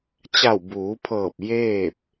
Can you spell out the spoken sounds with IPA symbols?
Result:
t͡ɕa˧˩w buː˩˧pʰɤː˧˩p̚ jeː˥˨p̚

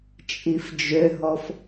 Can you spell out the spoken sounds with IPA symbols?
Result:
t͡ʃʼifd͡ʒøɦɔf

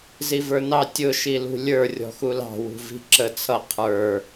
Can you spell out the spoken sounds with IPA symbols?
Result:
zivə˞nɑ tʲʊ ʃilṳlʲə˞ rʲɔ̤xulɑ̤ wṳvi̤ǁə t͡sʰʌ qʰə˞

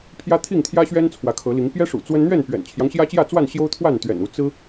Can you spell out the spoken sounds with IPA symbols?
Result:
pʰjä˦t̪ʰi˥˨ŋt̪ʰjä˦ɕɥɛ˦n t͡sʰwä˨˦kʰɤ˨˦li˨˦ŋ pjɛ˦ʂṵ˨˩ t͡swə˦n n̪ɥɛ˥˨npɥɛ̰˨˩nt͡ɕʰjɑ˦ŋ ɕjä˦t͡ɕjä˥˨t͡swa˥˨nɕjo˦ʊ̯ t̪ʰwa˥˨nt̪ɥɛ̰˨˩nu˨˦ t͡sɹ̩˦

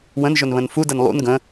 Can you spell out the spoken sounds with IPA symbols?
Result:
wə̃nʒɵnβə̃n fudən lˠṵn ɡə̃

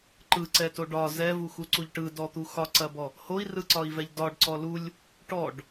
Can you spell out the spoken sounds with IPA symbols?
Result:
ǃɯǀɛto ɖɒ zɛvuxuǀuʎ ʈɯdɔt̪u xɒǀɐbɔ | hoi̯rɯǀɒi̯vɛʎ dɒɖǀɔ lulʲ | ʈɔɖ

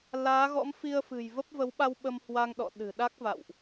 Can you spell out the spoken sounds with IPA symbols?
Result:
laː˨˦ɣɔ̰˧˥mfi˧ə̯ fɨ̤˨˩jvə˦˥p̚ və˨˦wɓa˧w ɓə˧mhwa˧ŋɗɔ̰˧˨ ɗɨ̤˨˩ɗa˦˥k̚va̰˧˨wʔ

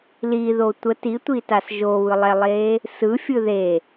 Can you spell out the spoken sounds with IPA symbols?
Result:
liðo tʷə titʷitas ʒoβɯlˠɛlˠeː | sɯfʲɯ ðe

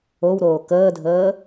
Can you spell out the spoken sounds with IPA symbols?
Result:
owɾoː kəːdʱəː

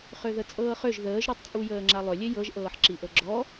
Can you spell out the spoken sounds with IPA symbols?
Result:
χøðət͡sʼɤːχøʒ ðəːʒɾutˤt͡sʼujəː ŋ͡ǁalˠølʲe jɤʒʔɤːħ ǁiʔɤɡ͡ǁɔ

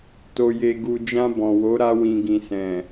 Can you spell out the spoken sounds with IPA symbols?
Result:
to˨je˨ ɡu˨d͡ʒã˧ bɔ̃˨wo˨˦ ɾa˧wĩ˨ɡĩ˨sɛ̃˨

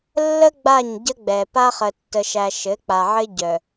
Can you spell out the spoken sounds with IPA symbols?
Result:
lːə˦ ɡ͡ba˦˨ɲɟə˦ɡ͡bɛ˨ pa˦χə˨ tːə˨ʃæ˨ ʃɘ˨˦ k͡pa˨ʕɘ˦ ɟœ˨

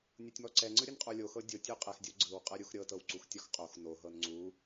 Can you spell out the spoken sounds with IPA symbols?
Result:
nʲutʲmɔǀɛŋ͡ǀɯ ɾʲɯnqʼolʲoxɤ dʲotʲu qʼɛxdʲo ɡ͡ǀɯwqʼɤ ɾʲuxɾʲɤ tɤwǀuxtʲɔxqʼox noɦɤn ŋ͡ǀu

